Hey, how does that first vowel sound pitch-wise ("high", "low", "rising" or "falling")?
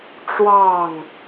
falling